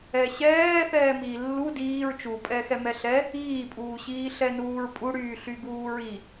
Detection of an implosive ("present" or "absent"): absent